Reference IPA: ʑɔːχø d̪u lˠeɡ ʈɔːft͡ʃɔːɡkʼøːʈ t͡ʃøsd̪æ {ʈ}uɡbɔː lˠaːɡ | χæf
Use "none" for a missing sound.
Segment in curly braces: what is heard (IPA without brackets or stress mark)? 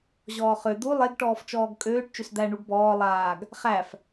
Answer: ɳ